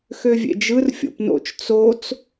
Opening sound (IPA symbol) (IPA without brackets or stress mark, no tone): x